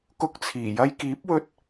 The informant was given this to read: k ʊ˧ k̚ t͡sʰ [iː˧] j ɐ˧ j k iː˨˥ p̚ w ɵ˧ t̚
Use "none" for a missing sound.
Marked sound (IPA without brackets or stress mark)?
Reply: iː˨˩